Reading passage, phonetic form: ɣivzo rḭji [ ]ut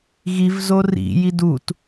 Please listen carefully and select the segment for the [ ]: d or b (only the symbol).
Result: d